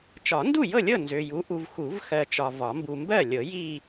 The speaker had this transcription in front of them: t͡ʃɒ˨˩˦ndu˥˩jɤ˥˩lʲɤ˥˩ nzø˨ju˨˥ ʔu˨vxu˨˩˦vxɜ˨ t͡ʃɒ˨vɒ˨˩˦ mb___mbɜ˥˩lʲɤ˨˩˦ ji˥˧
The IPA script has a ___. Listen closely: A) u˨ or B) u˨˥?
A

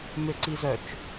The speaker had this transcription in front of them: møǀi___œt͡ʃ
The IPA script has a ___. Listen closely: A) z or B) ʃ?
A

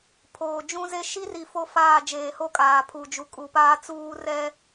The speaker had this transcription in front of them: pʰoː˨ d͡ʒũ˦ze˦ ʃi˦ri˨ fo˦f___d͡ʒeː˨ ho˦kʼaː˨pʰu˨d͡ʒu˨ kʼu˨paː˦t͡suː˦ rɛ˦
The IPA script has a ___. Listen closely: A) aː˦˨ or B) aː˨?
A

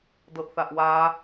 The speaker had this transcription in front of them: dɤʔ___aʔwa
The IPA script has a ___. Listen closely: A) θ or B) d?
A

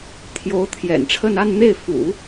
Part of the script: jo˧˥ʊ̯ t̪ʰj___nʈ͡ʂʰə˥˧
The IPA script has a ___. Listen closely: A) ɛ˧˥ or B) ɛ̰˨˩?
B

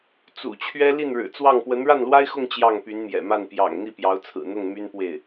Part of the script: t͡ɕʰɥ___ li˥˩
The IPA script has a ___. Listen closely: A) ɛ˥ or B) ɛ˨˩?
A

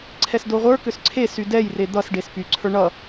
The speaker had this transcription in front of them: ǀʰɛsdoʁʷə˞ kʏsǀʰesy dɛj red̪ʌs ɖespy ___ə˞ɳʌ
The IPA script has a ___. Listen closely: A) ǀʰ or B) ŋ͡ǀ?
A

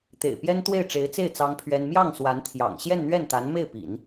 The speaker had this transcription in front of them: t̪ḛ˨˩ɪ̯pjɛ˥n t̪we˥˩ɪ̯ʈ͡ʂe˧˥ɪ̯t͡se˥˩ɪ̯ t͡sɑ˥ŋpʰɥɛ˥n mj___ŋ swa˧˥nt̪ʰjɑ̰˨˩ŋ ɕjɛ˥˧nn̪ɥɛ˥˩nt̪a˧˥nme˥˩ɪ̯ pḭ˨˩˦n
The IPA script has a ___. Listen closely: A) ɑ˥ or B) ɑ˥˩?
B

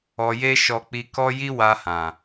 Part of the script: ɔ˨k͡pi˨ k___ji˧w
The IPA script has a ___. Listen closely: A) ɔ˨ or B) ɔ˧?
B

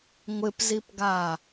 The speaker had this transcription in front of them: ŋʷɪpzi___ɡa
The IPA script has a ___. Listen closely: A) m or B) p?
B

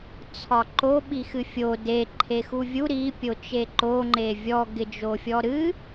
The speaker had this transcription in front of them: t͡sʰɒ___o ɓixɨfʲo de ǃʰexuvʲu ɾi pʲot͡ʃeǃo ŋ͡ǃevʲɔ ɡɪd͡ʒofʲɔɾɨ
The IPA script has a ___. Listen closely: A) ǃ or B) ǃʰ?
A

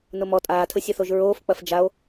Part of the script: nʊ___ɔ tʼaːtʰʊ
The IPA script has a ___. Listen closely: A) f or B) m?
B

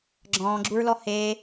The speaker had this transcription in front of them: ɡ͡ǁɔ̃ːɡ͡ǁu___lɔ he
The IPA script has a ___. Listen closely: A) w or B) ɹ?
B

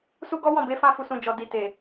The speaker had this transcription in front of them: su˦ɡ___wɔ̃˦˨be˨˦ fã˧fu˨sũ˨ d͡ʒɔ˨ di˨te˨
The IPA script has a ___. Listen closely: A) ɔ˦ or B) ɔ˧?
A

